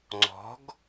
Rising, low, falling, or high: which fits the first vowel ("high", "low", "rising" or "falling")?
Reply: rising